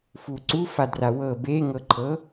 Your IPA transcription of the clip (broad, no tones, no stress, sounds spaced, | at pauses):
f u ǀ u f a d r a w ɤ b eː ŋ ɤ ǃʰ ɤ